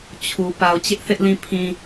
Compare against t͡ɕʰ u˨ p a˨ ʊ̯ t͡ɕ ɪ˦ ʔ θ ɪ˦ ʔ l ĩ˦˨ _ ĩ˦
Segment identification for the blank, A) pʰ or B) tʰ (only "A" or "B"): A